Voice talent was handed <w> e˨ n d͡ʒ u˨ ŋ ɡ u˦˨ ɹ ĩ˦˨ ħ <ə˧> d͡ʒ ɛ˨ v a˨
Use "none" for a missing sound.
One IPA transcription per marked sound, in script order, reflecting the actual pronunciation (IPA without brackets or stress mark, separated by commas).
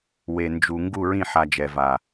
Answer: w, a˧